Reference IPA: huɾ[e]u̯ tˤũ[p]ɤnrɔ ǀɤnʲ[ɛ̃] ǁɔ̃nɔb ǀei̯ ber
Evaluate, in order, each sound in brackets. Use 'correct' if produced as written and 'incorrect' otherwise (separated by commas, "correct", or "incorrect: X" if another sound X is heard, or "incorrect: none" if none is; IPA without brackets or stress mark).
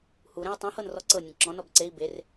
incorrect: ẽ, incorrect: h, incorrect: ẽ